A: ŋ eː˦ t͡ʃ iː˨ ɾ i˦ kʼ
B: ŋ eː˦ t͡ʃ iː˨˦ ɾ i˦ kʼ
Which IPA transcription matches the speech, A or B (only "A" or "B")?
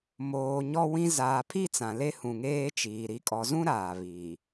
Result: A